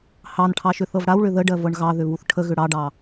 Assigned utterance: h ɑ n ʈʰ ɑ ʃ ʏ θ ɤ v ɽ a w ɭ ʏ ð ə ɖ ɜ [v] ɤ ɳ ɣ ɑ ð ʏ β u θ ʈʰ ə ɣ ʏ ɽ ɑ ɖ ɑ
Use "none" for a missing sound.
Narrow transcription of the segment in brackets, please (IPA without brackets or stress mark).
v